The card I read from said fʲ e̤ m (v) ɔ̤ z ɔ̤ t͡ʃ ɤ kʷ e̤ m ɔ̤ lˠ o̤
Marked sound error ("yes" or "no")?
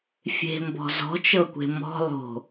yes